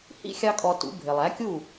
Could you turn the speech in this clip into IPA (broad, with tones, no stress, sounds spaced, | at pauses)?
h ḭ˧ xʲ ɑ˥ kʼ ɔ˧ t ṵ˩˥ bʱ ɪ˩ lˠ æ˩˥ kʲ u˥˩